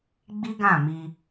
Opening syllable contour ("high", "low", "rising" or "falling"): high